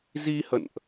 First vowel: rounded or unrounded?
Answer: unrounded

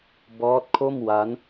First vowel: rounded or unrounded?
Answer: rounded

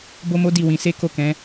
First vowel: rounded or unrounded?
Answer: rounded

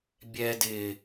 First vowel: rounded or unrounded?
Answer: unrounded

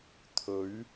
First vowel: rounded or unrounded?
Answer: rounded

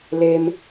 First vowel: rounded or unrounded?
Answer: unrounded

